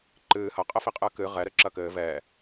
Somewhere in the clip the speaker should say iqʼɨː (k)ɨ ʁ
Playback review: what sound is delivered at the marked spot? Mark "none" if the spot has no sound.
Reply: k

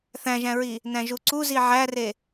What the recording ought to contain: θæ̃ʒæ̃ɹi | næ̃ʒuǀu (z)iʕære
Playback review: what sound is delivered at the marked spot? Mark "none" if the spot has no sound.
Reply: z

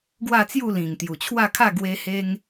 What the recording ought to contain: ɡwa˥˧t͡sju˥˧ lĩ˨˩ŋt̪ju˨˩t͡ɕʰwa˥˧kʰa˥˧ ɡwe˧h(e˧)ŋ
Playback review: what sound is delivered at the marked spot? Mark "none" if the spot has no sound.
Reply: e˧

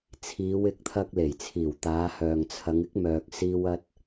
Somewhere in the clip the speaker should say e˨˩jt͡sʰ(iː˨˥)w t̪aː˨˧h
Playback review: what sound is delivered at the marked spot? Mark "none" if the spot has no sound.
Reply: iː˨˩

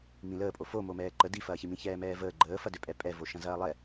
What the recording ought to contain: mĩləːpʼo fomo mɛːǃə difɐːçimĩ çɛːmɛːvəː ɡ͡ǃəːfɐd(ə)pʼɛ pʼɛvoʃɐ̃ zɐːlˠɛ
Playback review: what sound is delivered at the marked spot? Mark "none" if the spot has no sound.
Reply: ø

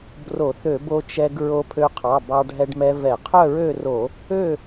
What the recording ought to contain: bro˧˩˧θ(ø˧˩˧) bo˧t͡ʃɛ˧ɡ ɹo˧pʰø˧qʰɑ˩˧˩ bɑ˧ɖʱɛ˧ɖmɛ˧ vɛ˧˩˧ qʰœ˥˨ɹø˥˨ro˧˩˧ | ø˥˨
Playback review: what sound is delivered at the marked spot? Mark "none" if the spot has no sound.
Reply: ø˧˩˧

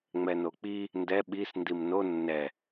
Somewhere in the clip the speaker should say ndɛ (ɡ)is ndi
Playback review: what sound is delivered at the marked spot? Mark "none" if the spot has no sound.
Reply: ɓ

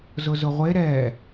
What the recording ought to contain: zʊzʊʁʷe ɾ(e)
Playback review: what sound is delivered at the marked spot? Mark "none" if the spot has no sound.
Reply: ɛ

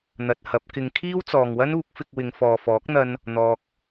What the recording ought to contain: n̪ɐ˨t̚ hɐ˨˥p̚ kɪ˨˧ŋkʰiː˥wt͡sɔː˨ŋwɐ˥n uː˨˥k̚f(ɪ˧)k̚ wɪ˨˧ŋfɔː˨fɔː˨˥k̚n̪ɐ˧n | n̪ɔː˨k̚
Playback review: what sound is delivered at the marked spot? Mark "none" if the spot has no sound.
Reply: ɪ˧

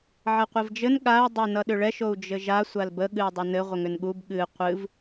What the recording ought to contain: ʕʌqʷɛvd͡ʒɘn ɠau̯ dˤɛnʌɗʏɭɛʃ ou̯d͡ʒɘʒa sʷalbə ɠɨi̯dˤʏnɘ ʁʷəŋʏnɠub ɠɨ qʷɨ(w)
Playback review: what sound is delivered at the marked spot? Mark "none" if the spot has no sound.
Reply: v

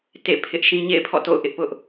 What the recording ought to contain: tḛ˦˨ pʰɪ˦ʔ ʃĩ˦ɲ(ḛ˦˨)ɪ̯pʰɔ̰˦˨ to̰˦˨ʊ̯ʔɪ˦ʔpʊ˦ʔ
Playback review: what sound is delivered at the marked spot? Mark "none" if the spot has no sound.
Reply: ḛ˦˨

